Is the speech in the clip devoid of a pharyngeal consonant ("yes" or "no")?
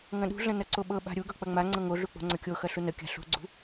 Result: yes